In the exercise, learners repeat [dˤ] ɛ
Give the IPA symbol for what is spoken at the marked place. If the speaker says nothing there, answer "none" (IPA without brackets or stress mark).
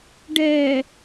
ɖ